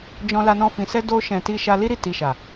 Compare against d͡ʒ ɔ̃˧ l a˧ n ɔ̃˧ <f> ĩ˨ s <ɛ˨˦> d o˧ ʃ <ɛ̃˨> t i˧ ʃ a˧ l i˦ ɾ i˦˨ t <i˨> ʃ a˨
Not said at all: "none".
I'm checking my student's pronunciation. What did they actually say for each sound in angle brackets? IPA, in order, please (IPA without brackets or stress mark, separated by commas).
f, ɛ˧, ɛ̃˨, i˨